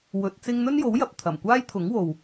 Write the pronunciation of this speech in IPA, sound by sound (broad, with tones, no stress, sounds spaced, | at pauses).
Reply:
w ɵ˨˥ t̚ t͡s ɪ˥ ŋ n̪ ɵ˥ n j o˨˥ w j ɐ˨ p̚ t̪ʰ ɐ˨˩ m kʷ aː˥ j t̪ʰ ʊ˨˥ ŋ w o˨ w